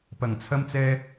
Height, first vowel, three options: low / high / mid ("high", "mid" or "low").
low